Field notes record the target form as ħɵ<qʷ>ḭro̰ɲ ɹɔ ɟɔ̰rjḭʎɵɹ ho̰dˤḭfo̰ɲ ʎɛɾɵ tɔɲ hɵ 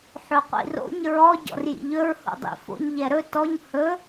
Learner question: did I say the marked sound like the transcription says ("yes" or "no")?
yes